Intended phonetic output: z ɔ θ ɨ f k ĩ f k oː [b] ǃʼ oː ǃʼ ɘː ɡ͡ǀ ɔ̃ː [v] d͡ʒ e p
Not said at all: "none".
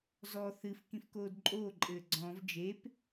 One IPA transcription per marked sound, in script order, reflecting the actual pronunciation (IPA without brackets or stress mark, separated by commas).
d, v